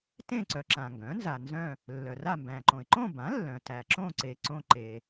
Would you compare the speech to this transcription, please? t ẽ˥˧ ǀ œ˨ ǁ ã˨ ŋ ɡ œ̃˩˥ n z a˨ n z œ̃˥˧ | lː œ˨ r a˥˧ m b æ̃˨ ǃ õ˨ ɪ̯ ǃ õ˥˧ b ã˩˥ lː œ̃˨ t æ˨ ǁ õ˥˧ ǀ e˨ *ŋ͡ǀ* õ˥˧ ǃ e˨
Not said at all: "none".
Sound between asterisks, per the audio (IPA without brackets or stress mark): ǀ